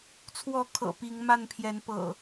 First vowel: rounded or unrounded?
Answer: rounded